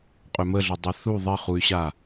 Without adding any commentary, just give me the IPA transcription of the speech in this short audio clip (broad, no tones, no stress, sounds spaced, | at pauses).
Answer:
qʼ ɵ m ə ɮ ɵ dˤ ʌ θ u ðˤ i χ u y̯ ɕ a